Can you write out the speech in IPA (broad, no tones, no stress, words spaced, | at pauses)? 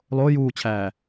lˠo juːt͡ɕʰæː